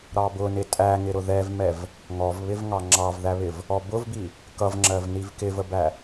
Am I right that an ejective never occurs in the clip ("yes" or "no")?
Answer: no